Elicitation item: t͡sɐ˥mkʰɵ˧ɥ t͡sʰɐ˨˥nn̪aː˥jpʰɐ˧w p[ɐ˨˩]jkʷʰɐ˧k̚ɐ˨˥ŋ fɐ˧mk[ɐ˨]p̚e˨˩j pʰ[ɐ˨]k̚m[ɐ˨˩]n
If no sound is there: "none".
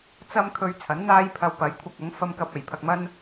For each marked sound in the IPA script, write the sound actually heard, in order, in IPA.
ɐ˨˧, ɐ˧, ɐ˨, ɐ˥

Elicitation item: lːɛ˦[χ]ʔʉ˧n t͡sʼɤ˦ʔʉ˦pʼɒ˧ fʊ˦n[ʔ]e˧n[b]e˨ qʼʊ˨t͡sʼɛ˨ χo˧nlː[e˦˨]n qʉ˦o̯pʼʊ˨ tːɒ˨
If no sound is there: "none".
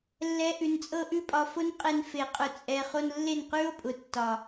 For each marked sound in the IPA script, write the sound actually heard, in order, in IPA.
none, qʼ, f, e˦˨

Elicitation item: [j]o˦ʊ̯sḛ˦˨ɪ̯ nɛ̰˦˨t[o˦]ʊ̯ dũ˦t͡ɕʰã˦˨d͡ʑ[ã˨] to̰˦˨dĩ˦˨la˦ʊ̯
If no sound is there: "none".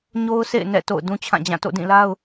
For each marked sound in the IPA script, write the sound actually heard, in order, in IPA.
ɲ, o̰˦˨, ã˦˨

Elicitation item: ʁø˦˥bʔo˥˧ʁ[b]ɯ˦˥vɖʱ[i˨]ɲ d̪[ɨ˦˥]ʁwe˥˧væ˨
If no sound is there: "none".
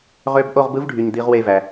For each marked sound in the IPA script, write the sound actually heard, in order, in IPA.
b, y˨, i˦˥

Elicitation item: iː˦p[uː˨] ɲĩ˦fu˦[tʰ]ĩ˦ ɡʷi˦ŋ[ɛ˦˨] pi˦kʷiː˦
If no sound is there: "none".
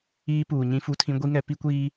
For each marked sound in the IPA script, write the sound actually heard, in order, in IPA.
uː˨, tʰ, ɛ˦

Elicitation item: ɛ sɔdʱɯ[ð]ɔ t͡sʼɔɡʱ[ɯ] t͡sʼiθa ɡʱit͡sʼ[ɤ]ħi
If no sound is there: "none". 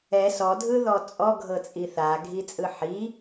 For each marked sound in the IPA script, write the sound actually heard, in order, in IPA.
ð, ɤ, ɯ

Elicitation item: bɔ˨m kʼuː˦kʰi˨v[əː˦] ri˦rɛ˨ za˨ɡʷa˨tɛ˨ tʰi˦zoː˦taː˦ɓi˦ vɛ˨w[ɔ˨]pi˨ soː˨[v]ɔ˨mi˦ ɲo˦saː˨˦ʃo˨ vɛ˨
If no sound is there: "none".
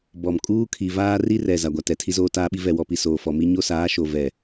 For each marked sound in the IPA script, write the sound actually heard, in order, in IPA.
aː˦, ɔ˨, f

